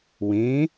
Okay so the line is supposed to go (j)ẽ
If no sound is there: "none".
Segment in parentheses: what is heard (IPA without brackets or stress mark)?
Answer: w